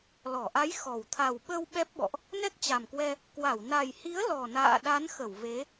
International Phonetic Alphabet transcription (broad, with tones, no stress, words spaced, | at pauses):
lɔ˧˩ʔa˨˦j xɔ˨˩w t̪ʰa˨˩w ɓə˧w ɓɛ˦˥p̚ɓɔ̰˧˨ʔ | nɛ˦˥k̚t͡ɕa˨˩mkwɛ˧ | kwa˧˩w na˨˩jhi˨˦ə̯ lɔ˨˩na̰ː˧˨ɗa˨˦nxə˧˩w ve˨˦